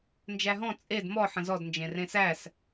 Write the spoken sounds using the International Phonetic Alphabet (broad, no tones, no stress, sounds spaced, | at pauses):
n d͡ʒ æ ɦ ɔ̃ t͡sʼ e d m ɔ ħ ə̃ z ɔ d n d͡ʒ ẽ r ẽ s æ s